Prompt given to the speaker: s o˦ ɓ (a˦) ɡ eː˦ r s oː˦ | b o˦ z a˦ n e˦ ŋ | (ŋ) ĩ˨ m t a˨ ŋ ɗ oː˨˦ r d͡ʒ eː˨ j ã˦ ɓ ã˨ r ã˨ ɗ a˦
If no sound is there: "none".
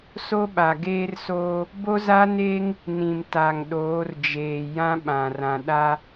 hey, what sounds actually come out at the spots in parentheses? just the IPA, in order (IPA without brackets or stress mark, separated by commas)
a˨, n